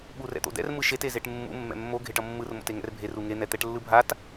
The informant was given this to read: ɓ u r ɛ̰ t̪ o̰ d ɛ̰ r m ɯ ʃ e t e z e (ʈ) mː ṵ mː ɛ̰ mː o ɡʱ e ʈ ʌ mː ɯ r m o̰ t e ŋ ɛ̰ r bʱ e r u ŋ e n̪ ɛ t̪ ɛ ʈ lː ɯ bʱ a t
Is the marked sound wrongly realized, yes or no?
no